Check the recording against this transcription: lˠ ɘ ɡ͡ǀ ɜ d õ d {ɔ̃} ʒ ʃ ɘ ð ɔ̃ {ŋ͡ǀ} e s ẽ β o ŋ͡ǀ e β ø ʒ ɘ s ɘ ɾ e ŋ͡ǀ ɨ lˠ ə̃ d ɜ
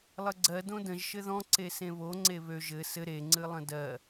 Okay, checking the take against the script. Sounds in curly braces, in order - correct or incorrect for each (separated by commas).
incorrect, incorrect